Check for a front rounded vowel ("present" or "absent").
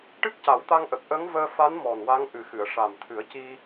absent